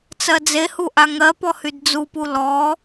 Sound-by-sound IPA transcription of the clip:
t͡sɜd͡zehu ʔaŋɜpɔ hydd͡zupu lɔ

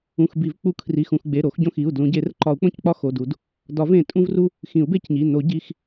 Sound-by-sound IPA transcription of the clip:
ũ˩˧˩xbi˨˩˦v k͡pu˦ kʰri˩˧˩xũ˩˧˩xɡ͡be˩˧˩ ɾo˨˩˦xɟõ˦xi˩˧˩u̯ dlũ˨˩˦ɟe˨˩˦r ǃɒ˨˩˦u̯k͡põ˦ck͡pɒ˦ xo˩˧˩du˨˩˦d | dɒ˨˩˦v ẽ˨˩˦tʼũ˦vru˦ | xĩ˨˩˦u̯be˦cɲi˩˧˩ no˨˩˦ ɟi˩˧˩x

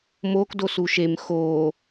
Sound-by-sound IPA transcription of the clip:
moːk dosuʃem xoː

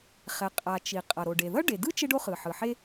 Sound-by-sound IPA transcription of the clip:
χɛ˩ qʼa˩ t͡ʃi˩qʼʌ˩ ɾo˩ɖe˩ ðʌ˥ɖe˩dɯ˥ t͡ʃe˥ɖo˥χɯ˩ħɯ˩ ħe˥

